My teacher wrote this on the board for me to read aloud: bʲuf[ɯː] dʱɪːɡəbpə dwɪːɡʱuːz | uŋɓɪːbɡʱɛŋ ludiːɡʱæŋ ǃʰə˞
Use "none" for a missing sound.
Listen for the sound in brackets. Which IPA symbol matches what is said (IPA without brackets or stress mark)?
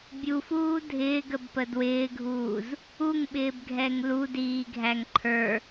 uː